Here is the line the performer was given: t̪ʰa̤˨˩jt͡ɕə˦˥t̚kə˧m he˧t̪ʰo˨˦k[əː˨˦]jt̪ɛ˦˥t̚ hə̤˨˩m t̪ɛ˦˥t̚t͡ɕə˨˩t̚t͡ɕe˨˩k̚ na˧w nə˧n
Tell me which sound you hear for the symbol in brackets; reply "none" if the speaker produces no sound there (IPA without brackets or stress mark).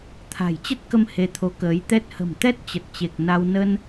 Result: əː˨˦